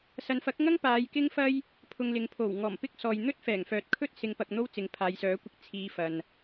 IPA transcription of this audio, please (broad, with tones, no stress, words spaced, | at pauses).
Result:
sɐ˨˧nfɐ˨˥k̚ŋɐ˥ŋ paː˨˧jkɪ˥ŋfɐ˥j | pʰʊ˧ŋlɪ˨˧ŋ pʰo˨˩wŋɔː˨˩m pɪ˥k̚sɔː˨j n̪ɵ˥t̚fɛː˨˩ŋfœː˨t̚kʰɵ˥t̚ sɪ˧ŋ pɐ˧k̚n̪o˥wt͡sɪ˨˧ŋ pʰaː˨˧jsœː˨˥kʷɪ˧k̚ t͡sʰiː˧fɐ˨n